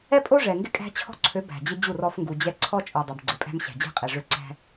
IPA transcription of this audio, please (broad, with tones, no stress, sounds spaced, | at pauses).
ɛ˦ pʼ o˦ ʐ ɛ˨ ŋ ɡ ɪ˦ kʼ æ̤˦ t͡ɕʰ ɔ̤˦ ǀʰ ø˨˦ b æ̤˨ d͡ʑ ɪ˦ d͡ʑ u˦˨ r ɔ˦ f ŋ ɡ u˨ d͡ʑ ɛ˦ ǀʰ ɔ˦ t͡ʃʼ o˨ dˤ æ˨ b ɡ͡ǀ ɪ˨ pʼ æ̤˦ m ɕ æ̤˨ d͡ʑ ɛ̤˦ qʼ ɛ˨ ʐ ø˦ ǀ æ̤˦